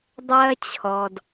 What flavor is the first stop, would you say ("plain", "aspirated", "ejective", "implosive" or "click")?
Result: plain